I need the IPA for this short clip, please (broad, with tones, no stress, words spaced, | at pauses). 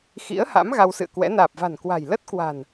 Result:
xḭ˧˥ə̯ha̰˧˥m ɣa˧wsɨ̰˧˨ə̯kwɛ̰˧˥ naː˨˩p̚va̤˨˩nkwa̤˨˩j lə˦˥t̚kwa̤˨˩n